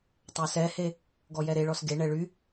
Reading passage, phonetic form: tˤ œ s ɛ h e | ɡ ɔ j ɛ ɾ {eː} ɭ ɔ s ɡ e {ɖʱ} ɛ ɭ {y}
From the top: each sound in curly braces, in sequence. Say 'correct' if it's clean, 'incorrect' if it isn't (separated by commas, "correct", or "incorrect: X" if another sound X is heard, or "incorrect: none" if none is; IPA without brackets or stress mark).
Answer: incorrect: e, incorrect: ɳ, correct